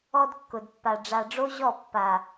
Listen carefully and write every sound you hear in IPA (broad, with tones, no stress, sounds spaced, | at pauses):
ɔ˦ d kː ʊ˨ d pː a˨ ɖ͡ʐ a˨ ɖ͡ʐ o˦ ʑ ɔ˦˨ pː a˨